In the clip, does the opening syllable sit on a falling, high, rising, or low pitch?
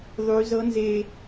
high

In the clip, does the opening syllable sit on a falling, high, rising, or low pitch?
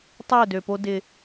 falling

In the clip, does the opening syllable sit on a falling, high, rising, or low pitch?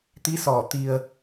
rising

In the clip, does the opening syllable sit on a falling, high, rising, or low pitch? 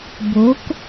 rising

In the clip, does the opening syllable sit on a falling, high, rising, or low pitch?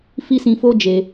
high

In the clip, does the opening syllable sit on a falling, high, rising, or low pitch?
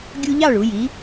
high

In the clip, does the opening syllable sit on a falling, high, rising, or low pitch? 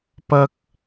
high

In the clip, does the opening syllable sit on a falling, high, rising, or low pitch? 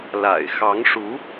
low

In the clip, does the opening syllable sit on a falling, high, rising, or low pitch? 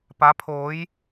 rising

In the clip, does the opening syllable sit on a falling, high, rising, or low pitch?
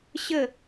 falling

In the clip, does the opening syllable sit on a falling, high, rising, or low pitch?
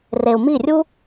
low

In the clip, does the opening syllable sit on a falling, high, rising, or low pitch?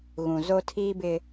low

